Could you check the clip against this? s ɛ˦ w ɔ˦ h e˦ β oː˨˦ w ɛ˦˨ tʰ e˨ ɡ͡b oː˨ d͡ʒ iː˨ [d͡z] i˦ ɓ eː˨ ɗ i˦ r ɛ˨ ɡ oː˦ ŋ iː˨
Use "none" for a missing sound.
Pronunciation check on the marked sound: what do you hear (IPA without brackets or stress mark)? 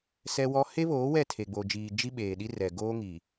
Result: d͡ʒ